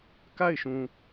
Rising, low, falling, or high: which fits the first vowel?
falling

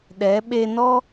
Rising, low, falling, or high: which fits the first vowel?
rising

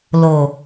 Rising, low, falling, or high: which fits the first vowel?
low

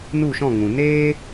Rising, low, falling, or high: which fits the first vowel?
falling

